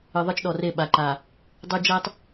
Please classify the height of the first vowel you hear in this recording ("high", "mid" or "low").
high